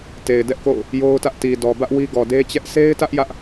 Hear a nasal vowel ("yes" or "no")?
no